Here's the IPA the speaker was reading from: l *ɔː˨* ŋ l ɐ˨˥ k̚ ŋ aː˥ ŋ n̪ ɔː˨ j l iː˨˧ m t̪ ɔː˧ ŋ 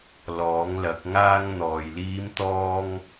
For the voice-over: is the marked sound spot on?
no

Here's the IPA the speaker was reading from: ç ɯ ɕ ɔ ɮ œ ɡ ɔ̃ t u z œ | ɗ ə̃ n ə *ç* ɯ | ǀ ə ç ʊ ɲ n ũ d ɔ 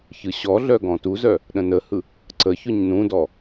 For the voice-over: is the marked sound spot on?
no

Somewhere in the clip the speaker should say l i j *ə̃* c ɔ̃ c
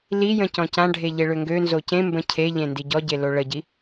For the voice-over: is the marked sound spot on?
yes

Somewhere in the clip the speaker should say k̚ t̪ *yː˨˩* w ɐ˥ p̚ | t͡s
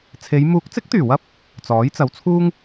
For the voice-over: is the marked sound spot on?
yes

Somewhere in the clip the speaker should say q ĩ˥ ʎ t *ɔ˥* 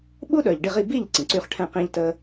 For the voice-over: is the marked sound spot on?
no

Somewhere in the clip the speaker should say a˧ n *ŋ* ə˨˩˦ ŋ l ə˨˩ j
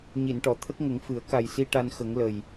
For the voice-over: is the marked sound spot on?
no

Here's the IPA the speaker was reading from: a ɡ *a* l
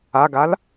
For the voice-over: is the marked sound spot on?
yes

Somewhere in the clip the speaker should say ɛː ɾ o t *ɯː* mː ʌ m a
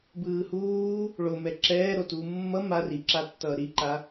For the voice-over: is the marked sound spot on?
no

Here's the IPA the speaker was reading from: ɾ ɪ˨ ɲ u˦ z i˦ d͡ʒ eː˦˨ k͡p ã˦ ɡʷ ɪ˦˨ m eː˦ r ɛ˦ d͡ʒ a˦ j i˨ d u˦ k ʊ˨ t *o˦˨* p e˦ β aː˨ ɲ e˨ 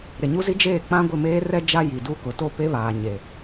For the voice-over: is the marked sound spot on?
yes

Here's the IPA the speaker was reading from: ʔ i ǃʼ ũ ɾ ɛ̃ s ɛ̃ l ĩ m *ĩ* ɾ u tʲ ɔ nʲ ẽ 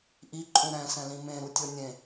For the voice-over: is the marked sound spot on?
no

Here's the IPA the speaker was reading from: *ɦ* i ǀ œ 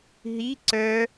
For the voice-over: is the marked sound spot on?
yes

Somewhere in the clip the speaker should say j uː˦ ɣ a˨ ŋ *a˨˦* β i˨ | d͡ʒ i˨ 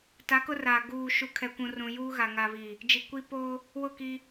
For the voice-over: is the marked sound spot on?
no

